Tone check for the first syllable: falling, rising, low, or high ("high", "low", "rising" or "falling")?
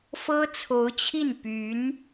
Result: high